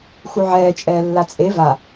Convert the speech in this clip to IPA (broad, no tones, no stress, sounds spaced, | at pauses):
x u ʕ ɛː t͡ʃʼ ɛː lː a t͡sʼ e v a